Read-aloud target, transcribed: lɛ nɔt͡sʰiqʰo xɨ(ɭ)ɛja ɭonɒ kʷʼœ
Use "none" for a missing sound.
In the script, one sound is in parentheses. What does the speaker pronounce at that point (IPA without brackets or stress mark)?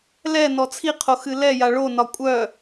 l